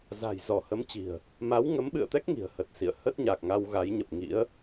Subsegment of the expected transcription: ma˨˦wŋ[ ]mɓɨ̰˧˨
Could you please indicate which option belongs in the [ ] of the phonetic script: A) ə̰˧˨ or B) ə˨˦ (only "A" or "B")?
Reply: B